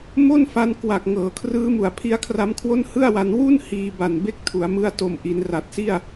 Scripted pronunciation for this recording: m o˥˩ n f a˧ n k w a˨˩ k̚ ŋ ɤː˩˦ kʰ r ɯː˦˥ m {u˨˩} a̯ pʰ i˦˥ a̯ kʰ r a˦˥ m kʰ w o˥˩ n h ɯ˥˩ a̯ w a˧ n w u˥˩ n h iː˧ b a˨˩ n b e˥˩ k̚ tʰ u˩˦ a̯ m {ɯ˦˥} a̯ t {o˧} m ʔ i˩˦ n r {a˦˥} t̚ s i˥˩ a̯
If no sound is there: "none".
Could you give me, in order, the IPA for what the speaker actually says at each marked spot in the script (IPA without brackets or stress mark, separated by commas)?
u˨˩, ɯ˦˥, o˨˩, a˨˩